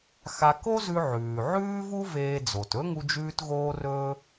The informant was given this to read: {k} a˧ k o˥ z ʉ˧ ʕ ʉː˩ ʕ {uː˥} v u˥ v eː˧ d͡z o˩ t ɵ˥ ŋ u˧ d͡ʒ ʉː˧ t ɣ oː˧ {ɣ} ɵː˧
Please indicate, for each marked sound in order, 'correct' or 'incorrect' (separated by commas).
incorrect, incorrect, incorrect